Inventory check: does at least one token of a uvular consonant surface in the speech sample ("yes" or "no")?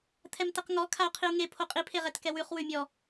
yes